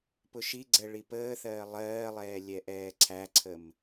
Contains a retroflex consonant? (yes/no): yes